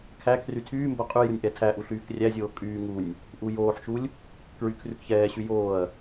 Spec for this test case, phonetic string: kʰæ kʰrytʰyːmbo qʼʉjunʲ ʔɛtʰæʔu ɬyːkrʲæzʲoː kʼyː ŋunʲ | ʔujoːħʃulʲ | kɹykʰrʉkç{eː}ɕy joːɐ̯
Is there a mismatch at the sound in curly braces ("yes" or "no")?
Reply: yes